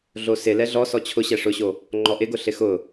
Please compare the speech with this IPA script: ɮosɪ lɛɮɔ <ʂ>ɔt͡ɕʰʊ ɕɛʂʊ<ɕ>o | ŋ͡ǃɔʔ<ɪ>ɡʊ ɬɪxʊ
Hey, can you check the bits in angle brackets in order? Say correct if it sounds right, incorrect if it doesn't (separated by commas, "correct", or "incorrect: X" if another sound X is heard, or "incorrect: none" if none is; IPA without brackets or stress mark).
incorrect: s, correct, correct